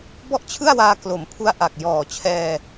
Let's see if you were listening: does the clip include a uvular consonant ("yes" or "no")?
no